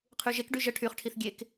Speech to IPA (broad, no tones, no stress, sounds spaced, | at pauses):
qʰ y ʒ e k ɖ y ʒ ə ʈʰ y χ ʈʰ i θ ɡʲ e k